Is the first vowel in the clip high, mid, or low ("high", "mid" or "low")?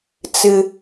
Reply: high